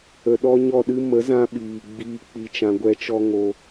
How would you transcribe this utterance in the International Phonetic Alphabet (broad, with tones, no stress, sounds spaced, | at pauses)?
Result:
ə˨ ɗ ɔ˧ ɲ ɔ˦˨ ɗ ɨ˦ m ə˨˦ z ã˧ ɓ iː˨ ɡ͡b iː˦ k͡p i˦ t͡ʃ ã˦ ɡʷ ɛ˦ t͡ʃ ɔ˦ ŋ o˧